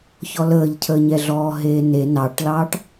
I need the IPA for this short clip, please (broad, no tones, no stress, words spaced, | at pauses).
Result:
çɔləːʎcʰəː ɲɛɮɔːɦeːne nɑʈlɑːʈ